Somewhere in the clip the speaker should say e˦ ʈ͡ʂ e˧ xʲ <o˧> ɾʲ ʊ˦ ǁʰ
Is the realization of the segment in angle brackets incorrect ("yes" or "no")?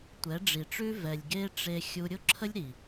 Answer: yes